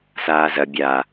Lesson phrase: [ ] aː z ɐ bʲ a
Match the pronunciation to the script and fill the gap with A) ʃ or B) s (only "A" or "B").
B